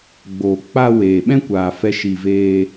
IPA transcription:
ɡ͡b oː˨ k͡p a˧ w eː˨ ɓ ɛ̃˦ kʷ aː˨ f ɛ˧ ʃ i˨ v eː˧

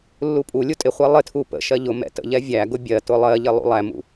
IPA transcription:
lː u pʼ u lʲ u tʼ ɪ χʷ ɛ lˠ ɪ tʰ u p ə̰ ʃ ɜ ʎ ʊ m ɛ̰ t ə̰ ʎ ɛ vʲ æ ɡ ʊ bʲ ɜ t ʊ lˠ ɜ ʎ ɪ lˠ ṵ lˠ æ m ṵ

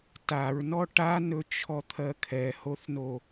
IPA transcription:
t a ɹ n ɔ ʈ a n ɵ t͡ʃʰ ɔ t̪ʰ ɜ kʰ ɛ h o θ n o

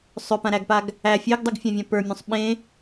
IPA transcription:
sˤ ʏ p ã ɾ æ ɡ p a ɡ | æ fʲ e ɡ dˤ u ɡ fʲ ã vʲ ã p ə˞ mʲ ũ sˤ ɓ ẽ

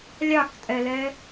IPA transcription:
lʲ ɑ k tʼ ɛ l ɛ

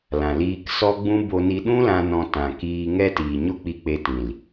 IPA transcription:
l ã˨ l iː˧ k s ɔ˦ ɡ͡b ũ˦ b o˧ n i˧ ɗ ũ˦ l ã˧ n ɔ̃˧ t ã˨ k iː˧ ŋ ɛ˦ t iː˨ ɲ o˦ k͡p i˧ k͡p e˧ t ĩ˨ l

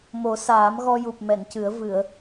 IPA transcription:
m o˨˩˦ s aː˨˩˦ m ɣ ɔ˧ j u˨˩ p̚ m ɛ˨˩˨ n c ɨ˨˩˦ ə̯ v ɨ˨˩˨ ə̯

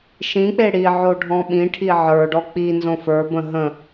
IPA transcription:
ʃ ĩ k͡p e ɽ i ʕ o ɖʱ ɔ̃ ɓ ĩ ʈʰ i ʕ ə˞ ɖ ɔ k͡p i n z õ f ə˞ b ə̃ ɦ ə̃

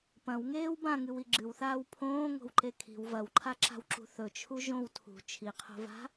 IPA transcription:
p ɐ̃ w ŋ eː w b ã ŋ ɨ w i ɡ͡ǁ ɨ w θ aː w pʰ õː ŋ o̤ w ǃ e kʰ i̤ w v ɐ w ǃʰ a ǁ a̤ w ǁ ṳ θ ɵ t͡ʃʰ u ʒ õ w tʰ ṳ t͡ʃʰ i qʰ o̤ v a̤

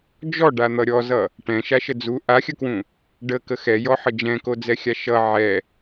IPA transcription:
d͡ʒ ɔ ɖ a n̪ ʌ ɾʲ ɔ z ʌ | ʈ ɛ̃ ʃ a ʃ ə d͡z u ʔ a xʲ ə k w ũ | ɖ ə k ə x ɛ j ɔ ħ ə d͡ʒ ɛ̃ k o d͡z ɛ xʲ a ʃ ʌ ʕ ɛ

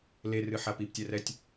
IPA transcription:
l e r ɨ ħ a p i p tʲ ɛ r ɛ tʲ

